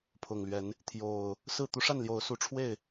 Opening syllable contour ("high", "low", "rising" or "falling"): low